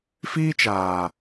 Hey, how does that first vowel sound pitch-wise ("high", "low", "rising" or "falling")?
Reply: high